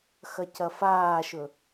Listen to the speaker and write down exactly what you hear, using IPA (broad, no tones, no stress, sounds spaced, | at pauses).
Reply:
x ɐ c ɐ f aː ʃ ɵ